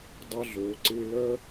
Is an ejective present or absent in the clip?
absent